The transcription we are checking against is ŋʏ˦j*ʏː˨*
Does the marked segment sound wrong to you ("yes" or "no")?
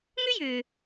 no